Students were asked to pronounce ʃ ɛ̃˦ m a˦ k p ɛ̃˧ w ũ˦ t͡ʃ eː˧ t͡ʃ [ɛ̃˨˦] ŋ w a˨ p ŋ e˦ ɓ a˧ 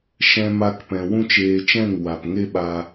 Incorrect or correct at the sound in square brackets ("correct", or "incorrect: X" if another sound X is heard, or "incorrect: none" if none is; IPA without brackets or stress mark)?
incorrect: ɛ̃˦˨